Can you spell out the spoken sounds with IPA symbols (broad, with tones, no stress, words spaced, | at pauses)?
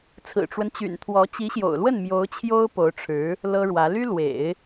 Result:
t͡sʰɹ̩˨˩ʈ͡ʂwə˦nt͡ɕy̰˨˩n t̪ʰwɔ˧˥ t͡ɕi˧˥ɕjo̰˨˩ʊ̯lwə˥˩n mjo˧˥ʊ̯t͡ɕʰjo˥ʊ̯ po˧˥ʊ̯ʈ͡ʂʰɻ̩˧˥ | lɤ˥ɻwä˧˥ ly˥lwḛ˨˩˦ɪ̯